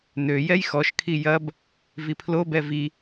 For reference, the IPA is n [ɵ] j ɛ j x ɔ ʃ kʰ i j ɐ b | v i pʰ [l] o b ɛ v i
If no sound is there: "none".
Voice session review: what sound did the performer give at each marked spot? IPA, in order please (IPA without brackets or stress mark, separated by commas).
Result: ø, l